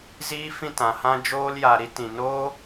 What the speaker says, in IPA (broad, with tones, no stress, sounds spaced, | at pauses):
z iː˦ f ĩ˦˨ t ã˨ h ã˦ d͡ʒ oː˦ l j a˧ ɾ i˦ t ĩ˨ n oː˦